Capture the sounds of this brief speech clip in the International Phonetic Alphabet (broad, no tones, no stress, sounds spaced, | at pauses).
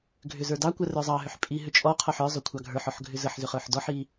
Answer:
ɡʱ ʏ z ə˞ d ɑ kʷ ɜ r ə˞ zˤ ɑ ɦ ʏ ħ pʼ i ɦ ʏ t͡ʃʼ ɔ qʰ ɔ ħ ə˞ zˤ ʏ kʷʰ ɑ ɡʱ ə˞ ħ ɔ ħ ɡʱ ʏ z ə ħ z ʏ χ ə˞ ħ d ɔ ħ i